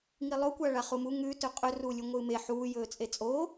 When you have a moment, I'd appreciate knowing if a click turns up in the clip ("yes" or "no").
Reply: no